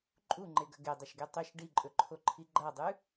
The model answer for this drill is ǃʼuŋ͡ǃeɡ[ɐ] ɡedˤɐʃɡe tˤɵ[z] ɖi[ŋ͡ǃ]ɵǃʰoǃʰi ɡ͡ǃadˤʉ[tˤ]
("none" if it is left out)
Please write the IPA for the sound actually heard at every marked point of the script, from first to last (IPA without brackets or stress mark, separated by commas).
ɐ, ʃ, ǃʼ, none